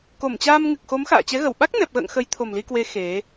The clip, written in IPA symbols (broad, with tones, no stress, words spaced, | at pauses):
ko˧˩mt͡ɕaː˧mŋɨ˨˩k̚xo˨˦m xa̰ː˧˨t͡ɕɛ˨˦ɣə˧˩w ɓa˦˥k̚nɛ˨˩p̚ɣə̰ː˧˨ŋ xə˨˦jt̪ʰo˨˩mli˧kwe˨˦ xe˨˦